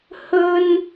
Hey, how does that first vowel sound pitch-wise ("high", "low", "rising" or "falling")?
high